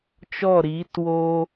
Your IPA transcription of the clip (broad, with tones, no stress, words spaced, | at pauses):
t͡ʃɔ˦˨ɾiː˨˦twoː˦